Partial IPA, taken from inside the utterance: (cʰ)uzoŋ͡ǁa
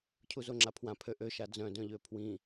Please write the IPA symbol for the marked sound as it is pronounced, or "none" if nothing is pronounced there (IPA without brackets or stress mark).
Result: cʰ